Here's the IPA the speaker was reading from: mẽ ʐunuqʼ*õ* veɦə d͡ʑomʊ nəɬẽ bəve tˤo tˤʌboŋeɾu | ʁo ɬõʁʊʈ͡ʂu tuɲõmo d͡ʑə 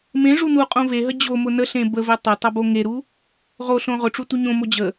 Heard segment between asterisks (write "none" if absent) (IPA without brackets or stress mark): õ